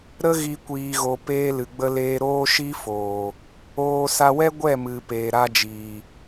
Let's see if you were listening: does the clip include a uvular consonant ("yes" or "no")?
no